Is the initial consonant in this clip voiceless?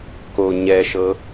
yes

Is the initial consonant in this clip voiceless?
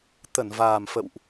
yes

